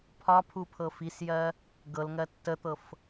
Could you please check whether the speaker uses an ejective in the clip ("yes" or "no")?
no